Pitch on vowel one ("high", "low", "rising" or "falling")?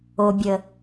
low